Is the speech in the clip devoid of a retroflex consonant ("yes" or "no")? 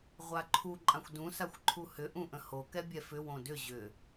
yes